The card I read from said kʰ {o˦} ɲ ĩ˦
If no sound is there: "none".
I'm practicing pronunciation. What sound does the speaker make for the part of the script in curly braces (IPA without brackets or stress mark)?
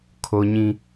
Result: o˦